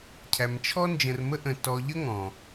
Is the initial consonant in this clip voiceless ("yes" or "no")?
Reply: yes